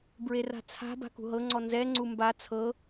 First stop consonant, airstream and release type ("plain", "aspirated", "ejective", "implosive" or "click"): plain